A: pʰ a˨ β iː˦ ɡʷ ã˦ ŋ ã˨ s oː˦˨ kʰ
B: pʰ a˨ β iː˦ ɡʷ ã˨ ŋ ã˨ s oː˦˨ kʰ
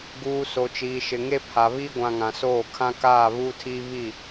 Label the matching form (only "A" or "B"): B